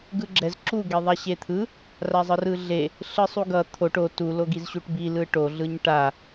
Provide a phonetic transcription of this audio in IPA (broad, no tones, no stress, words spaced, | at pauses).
ɡɯɡ͡ǁɛz ǁu ɡeðˤaɕet̪ʰɯ | razˤɯrɯɮe | ɬɯsˤuɡʌ t̪ʰoʈ o tu loɡizɕuʈbi lɯʈo ɮɯɲʈa